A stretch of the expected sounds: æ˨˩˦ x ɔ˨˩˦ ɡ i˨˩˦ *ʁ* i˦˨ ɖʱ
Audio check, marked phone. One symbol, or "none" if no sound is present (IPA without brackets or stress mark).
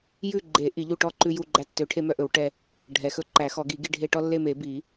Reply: ɡ